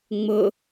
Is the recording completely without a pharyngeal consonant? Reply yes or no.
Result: yes